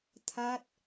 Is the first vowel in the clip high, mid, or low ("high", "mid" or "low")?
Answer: low